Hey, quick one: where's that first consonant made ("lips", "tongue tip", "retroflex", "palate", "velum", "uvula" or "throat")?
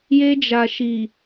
palate